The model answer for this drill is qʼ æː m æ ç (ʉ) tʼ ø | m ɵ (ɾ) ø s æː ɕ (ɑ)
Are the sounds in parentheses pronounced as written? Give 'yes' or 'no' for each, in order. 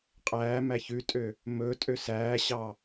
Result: yes, no, yes

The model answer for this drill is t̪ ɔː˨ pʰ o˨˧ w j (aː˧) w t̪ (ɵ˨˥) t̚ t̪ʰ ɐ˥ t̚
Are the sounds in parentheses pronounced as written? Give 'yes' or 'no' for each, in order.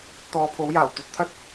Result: no, no

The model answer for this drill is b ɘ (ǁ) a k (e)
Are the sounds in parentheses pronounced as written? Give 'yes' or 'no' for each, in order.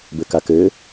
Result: no, no

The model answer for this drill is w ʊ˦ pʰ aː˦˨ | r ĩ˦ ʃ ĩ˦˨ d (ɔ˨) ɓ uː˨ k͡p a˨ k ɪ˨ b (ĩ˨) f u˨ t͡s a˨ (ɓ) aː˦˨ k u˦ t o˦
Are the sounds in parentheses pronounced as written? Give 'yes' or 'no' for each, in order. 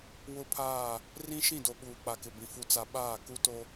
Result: no, yes, yes

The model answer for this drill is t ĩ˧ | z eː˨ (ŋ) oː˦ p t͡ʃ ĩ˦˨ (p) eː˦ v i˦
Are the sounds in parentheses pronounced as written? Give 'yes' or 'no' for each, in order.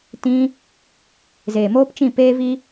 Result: no, yes

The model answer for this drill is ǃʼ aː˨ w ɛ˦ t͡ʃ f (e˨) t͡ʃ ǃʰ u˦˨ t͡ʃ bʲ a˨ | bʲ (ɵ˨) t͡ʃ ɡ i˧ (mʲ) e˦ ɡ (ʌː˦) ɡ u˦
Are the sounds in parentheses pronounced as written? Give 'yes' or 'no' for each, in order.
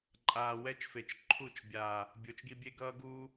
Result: yes, no, no, yes

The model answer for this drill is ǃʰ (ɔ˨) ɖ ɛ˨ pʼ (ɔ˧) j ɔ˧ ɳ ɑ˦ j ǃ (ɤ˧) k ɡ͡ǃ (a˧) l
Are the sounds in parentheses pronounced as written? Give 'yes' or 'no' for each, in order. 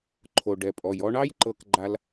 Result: no, no, yes, yes

